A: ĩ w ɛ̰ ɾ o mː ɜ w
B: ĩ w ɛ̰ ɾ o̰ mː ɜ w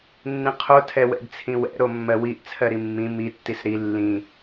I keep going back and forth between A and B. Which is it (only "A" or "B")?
A